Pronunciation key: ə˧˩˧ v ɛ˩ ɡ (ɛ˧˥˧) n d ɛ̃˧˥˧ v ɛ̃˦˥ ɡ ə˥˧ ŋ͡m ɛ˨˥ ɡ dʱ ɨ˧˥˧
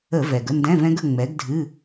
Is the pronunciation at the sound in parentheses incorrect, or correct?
incorrect: ə˧˥˧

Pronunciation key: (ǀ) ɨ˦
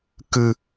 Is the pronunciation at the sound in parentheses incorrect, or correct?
incorrect: k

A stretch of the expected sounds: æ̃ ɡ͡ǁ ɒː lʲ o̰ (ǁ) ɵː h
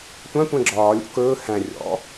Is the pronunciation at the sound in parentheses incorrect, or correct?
incorrect: k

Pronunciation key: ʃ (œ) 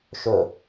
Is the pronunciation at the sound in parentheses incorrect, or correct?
incorrect: ɵ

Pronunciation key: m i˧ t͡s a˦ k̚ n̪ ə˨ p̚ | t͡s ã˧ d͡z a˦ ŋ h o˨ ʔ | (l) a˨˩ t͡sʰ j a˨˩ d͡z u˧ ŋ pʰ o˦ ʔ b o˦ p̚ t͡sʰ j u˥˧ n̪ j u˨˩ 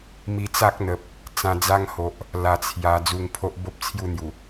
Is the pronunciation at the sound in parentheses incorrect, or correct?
correct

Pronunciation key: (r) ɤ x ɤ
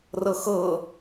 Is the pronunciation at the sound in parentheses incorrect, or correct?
correct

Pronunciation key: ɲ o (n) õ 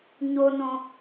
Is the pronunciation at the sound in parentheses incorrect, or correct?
correct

